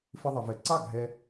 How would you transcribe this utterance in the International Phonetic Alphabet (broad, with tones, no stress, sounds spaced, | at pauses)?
f ɪ˧ ðˤ ɪ˩ v ɛ˩ ǀ ɑ˥˩ ɡʱ ɛ˧